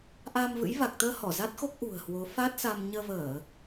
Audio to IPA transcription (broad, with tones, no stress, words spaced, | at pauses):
ʔaː˧mvɨ̰˧˥j va˨˩k̚t̪əː˧ hɔ˧˩za˦˥t̚xo˦˥k̚ ʔṳ˨˩ə̯hwo˨˦ fa˦˥t̚sa˧m ɲəː˧vəː˧˩˨